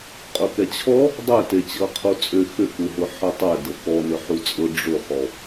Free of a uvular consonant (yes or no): no